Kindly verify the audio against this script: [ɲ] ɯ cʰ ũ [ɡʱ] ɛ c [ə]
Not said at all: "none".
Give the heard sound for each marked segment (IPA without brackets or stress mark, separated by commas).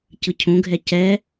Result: c, ɡʱ, ɛ